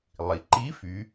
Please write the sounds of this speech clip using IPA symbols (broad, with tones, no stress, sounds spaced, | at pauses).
lˠ i˩ ǃ i˧˥ f y˩˧